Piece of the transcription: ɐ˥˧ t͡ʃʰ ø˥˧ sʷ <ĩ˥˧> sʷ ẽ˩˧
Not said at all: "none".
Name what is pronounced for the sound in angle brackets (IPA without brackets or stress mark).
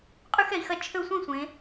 ĩ˥˧